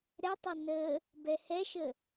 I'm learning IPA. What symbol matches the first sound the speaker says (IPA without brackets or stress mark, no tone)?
ɾ